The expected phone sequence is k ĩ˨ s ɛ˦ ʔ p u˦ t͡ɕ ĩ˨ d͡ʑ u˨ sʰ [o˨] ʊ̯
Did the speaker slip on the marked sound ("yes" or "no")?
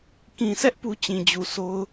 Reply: yes